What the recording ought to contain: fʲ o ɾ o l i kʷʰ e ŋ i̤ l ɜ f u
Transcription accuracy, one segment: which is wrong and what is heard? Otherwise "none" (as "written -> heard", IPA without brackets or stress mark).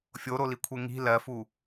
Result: none